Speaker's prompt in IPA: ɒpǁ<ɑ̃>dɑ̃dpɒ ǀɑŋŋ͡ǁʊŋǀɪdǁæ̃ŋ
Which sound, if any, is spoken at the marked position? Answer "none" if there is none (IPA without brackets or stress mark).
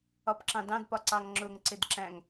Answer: ɑ̃